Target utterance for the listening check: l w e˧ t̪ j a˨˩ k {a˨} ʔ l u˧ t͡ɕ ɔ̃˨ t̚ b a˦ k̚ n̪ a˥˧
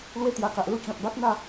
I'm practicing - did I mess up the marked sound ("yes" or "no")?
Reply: no